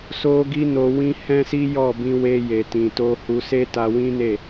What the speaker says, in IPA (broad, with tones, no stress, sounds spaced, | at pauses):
s o˧ ɡ i˧ n o˨ w ĩ˧ h ɛ̃˦ s i˦ j ɔ˦˨ b ĩ˧ w e˧ j e˨ t ĩ˨ t o˧ h u˧ s e˦ t a˧ w ĩ˦ n e˦˨